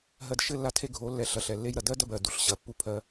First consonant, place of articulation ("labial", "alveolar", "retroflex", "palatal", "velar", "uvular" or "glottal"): glottal